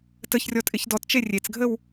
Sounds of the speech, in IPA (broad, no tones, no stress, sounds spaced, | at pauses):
t ə ç rʲ ɔ tʼ ɪ ç d ɔ t t͡ʃ e rʲ e t͡s ɡʱ ə w